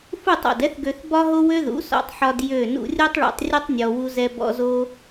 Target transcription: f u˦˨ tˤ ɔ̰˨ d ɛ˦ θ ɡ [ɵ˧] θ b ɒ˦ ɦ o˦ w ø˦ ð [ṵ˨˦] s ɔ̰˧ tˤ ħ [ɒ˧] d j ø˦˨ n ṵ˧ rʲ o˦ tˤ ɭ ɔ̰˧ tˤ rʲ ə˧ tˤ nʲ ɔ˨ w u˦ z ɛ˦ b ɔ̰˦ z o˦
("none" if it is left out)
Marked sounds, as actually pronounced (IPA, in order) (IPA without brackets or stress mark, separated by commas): ø˧, ṵ˨˦, ɒ˧